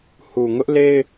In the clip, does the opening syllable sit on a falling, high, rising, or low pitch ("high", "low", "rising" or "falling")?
low